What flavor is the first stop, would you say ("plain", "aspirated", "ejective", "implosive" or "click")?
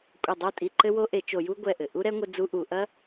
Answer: ejective